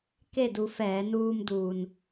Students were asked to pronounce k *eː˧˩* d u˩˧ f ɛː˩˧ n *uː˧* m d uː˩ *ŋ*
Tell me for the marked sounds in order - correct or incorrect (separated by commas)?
incorrect, correct, incorrect